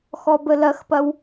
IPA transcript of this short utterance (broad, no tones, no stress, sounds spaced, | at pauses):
x ɔ b ə l ɐ x p ɐ w